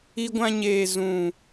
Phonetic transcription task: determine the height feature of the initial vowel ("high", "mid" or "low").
high